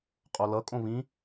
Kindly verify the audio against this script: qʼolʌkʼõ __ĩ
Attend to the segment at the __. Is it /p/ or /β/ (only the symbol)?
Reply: β